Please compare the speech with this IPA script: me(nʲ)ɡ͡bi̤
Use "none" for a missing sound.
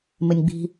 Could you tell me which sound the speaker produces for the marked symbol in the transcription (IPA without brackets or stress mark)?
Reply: nʲ